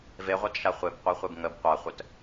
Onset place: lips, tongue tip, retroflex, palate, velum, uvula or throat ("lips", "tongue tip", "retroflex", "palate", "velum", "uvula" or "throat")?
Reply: lips